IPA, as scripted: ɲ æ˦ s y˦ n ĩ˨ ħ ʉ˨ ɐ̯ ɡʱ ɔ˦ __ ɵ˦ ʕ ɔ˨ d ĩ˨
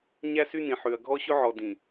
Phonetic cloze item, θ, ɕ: ɕ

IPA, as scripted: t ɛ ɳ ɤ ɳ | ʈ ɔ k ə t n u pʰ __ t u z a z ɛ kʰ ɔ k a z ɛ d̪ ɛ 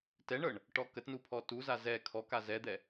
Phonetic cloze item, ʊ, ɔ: ɔ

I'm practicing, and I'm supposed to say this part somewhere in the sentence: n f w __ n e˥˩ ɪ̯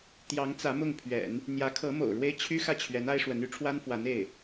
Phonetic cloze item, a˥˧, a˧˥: a˧˥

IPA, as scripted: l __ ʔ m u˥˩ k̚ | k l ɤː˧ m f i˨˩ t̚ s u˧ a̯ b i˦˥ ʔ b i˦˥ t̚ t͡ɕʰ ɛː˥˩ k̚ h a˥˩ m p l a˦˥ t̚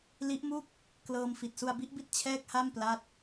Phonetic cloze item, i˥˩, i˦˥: i˦˥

